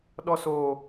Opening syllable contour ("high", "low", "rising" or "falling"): high